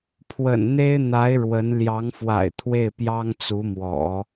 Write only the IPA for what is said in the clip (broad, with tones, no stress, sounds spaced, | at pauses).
pʰ w ə̰˨˩ n n̪ e˥ ɪ̯ n̪ a˧˥ ɪ̯ ɻ w ə˧˥ n l j ɑ˧˥ ŋ f w a̰˨˩ ɪ̯ t̪ʰ w e˥˩ ɪ̯ p j ɑ˥ ŋ t͡s u˧˥ m w ɔ̰˨˩˦